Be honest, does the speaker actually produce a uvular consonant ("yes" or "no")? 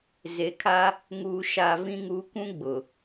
no